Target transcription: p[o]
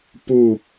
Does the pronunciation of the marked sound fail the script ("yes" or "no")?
yes